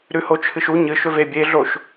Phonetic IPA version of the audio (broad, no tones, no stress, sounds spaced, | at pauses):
ɾ ʉ h o t͡ʃʰ ɨ ʃ u ɲ ɨ ʃ ɵ v e bʲ e ɮ o ʃ